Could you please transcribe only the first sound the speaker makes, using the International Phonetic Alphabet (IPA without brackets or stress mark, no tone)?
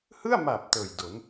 h